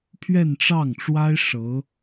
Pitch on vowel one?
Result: falling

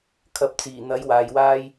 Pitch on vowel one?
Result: rising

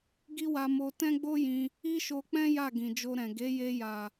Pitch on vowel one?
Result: high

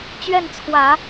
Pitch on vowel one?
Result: falling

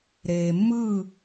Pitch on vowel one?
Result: low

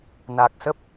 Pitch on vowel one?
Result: low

